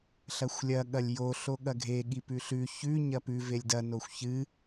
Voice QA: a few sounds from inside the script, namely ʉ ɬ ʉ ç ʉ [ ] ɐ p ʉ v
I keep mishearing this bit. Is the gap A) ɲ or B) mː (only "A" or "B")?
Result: A